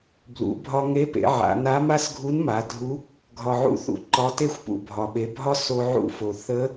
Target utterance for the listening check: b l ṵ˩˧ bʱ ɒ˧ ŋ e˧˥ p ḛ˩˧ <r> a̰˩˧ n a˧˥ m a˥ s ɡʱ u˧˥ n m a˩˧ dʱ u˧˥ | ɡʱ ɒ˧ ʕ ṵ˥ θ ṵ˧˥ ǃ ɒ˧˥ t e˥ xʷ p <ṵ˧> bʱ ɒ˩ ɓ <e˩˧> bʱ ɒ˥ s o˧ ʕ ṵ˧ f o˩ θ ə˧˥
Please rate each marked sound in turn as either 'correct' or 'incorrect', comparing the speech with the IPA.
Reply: incorrect: ʕ, incorrect: ṵ˩, correct

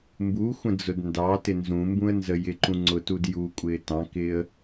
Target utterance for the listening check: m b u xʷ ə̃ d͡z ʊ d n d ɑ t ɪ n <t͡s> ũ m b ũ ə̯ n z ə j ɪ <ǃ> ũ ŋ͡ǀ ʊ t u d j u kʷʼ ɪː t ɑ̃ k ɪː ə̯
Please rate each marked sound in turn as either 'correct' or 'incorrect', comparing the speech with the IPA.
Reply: incorrect: z, correct

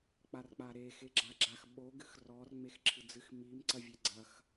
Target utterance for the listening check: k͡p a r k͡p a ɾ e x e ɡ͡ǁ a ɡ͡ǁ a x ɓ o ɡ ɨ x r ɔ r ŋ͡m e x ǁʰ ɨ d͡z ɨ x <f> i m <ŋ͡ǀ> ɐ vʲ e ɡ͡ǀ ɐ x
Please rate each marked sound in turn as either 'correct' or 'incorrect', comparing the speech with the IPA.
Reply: incorrect: m, incorrect: ǀ

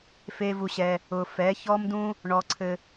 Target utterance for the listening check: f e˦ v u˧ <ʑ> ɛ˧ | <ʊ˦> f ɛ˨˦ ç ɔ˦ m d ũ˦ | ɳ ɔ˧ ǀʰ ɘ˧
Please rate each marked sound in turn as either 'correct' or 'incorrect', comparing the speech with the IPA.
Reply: incorrect: ɕ, incorrect: ʊ˧

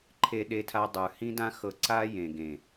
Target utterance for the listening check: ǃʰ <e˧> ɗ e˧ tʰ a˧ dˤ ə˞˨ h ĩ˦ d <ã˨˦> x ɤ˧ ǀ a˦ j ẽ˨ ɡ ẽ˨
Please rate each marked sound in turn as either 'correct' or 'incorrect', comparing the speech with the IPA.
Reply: correct, incorrect: ã˦

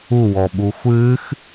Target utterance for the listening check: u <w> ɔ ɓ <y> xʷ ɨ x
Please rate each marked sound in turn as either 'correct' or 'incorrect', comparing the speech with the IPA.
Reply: correct, incorrect: u

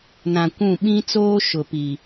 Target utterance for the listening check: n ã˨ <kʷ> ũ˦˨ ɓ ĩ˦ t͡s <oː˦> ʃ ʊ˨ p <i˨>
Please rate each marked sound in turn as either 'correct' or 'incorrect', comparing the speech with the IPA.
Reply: correct, correct, correct

